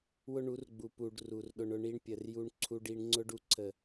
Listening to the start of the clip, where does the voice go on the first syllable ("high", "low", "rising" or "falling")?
high